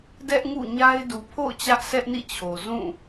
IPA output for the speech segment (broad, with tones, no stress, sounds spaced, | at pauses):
d ɛ˦ ʔ ŋ ṵ˦˨ ɲ a˦ ɪ̯ d u˨ pʰ o̰˦˨ ʊ̯ t͡ɕ ä˦ ʔ sʰ ɛ˦ ʔ n ḭ˦˨ t͡ɕʰ o˨ z ũ˦˨